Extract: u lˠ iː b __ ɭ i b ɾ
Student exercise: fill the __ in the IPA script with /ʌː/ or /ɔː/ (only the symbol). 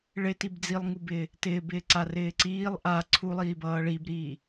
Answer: ʌː